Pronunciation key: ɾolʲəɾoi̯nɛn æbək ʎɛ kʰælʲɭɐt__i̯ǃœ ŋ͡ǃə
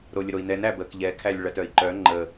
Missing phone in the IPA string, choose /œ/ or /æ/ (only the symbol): œ